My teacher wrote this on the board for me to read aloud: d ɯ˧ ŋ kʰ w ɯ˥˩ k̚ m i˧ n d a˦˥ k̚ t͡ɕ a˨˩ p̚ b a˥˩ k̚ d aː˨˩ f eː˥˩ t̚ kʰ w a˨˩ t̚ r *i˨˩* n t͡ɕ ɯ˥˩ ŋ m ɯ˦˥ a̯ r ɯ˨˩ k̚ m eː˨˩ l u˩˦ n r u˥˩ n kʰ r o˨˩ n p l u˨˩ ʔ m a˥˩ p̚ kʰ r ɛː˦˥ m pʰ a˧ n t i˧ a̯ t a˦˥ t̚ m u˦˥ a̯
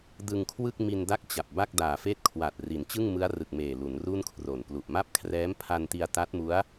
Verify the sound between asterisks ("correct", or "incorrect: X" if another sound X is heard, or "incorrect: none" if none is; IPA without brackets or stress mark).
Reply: incorrect: i˩˦